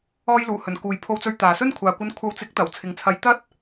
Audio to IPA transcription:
ɔː˧jluː˨˩hɵ˨˩n kuː˨j pʰo˧wt͡sɵ˧ɥt̪aː˨sɵ˥n kʷʰaː˨kʷɐ˧n kʷʰɐ˨˧wt͡sɪ˨˥k̚t̪ɐ˨˩w t͡sʰɪ˨ŋt͡sʰɐ˨˧j t̪ɐ˥t̚

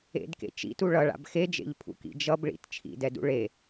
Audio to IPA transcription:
ḛdkḛ t͡ʃḭtu ɭʌɭa̰b xed͡ʒḛʎpʰṵkḭ d͡ʒʌbɭḭt t͡ʃʰḭdɛdṵ ɭe

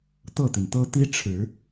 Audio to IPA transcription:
t̪ɤ˥˩t̪i˩nt̪ɤ˥ t̪i˥ʈ͡ʂʰɻ̩˨˩˦

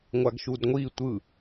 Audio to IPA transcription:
ŋʷaɡʃudŋʷi tʷɯ

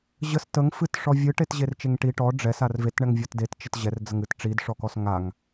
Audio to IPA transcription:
ʑəs təŋ fɨtʂɔ vʲɨʈetʑer t͡ʃeŋʈi ʈɔ ɖ͡ʐɛs arvetɳɛŋ vʲɔtdett͡ʃət ʑɛrd͡zəŋ ɨtʈ͡ʂidʂɔkɔs ŋaŋ

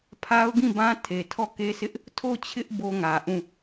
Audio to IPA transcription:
pʰa˦ʊ̯ɡĩ˦˨bã˦ tʰe˨tʰɔ˦˨ ke˦sɪ˦ʔ | tʰo˦˨t͡ɕʰɪ˦ʔ bo˦ŋä˨ʔũ˦˨

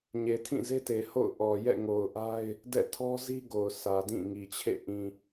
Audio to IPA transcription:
ɲe˨tʰĩ˦˨ze˦te˨ ho̰˦˨ʊ̯ʔɔ˨ jɛ̰˦˨ŋo˨ʊ̯ʔa˦ɪ̯ | dɛ̰˦˨tʰɔ˦zi˦ɡo˨ʊ̯ sʰä˨dĩ˦˨ŋi˨t͡ɕʰḛ˦˨ ʔĩ˨

